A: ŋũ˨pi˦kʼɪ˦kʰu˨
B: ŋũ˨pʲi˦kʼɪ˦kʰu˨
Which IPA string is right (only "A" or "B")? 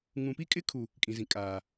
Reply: A